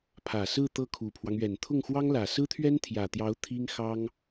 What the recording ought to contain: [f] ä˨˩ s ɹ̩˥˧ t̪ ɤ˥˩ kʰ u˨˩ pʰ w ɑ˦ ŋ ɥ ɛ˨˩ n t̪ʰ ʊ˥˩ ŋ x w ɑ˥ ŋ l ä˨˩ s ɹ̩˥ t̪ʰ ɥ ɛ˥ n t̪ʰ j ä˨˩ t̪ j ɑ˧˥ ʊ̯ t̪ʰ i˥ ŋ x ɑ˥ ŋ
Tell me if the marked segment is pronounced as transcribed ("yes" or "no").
no